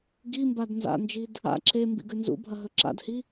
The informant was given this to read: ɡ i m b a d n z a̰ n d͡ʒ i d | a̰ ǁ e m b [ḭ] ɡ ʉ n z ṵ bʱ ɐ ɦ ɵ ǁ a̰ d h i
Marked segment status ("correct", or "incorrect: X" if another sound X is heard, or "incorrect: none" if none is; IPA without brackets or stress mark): correct